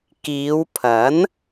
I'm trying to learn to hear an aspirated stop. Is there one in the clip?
yes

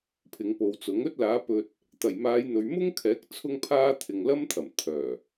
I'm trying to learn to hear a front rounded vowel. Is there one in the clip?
yes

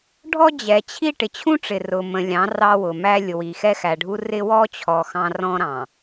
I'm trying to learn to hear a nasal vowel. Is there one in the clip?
yes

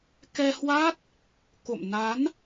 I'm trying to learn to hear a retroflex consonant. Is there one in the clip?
no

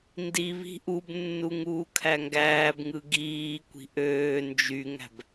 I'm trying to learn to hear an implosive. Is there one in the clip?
no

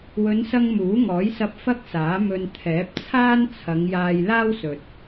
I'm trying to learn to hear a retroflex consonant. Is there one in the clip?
no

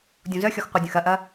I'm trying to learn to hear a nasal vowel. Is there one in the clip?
yes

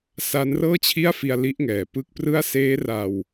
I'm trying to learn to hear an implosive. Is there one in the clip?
no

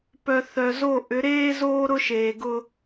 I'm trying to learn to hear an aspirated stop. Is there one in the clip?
no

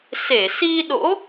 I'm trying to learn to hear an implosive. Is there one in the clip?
yes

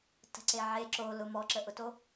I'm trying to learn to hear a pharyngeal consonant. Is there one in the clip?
yes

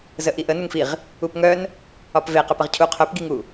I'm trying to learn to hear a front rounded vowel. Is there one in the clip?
yes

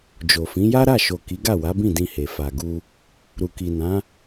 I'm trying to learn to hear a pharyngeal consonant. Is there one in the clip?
no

